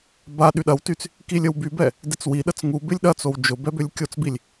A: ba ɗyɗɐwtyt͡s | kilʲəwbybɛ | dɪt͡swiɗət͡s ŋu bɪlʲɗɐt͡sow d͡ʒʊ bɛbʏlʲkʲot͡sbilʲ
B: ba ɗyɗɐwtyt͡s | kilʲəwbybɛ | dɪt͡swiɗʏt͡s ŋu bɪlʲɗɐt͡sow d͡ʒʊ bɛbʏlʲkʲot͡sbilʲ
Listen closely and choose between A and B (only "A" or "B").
A